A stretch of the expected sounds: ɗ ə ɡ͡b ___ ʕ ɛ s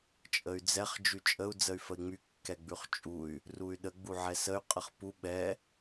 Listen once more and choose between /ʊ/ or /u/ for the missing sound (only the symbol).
u